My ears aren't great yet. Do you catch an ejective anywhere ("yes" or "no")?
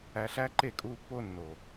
yes